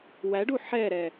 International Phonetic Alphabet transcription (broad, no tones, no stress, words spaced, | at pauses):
wæɖu ħɛɾɛ